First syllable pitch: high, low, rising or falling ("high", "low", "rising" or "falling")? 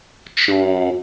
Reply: low